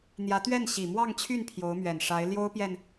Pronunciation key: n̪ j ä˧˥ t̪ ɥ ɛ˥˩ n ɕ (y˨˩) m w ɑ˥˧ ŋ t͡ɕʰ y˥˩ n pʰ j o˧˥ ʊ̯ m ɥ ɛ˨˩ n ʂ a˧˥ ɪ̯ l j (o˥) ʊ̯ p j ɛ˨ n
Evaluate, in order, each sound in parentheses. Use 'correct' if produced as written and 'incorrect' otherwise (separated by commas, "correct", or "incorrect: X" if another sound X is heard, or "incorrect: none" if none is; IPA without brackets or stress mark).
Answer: incorrect: i˨˩, correct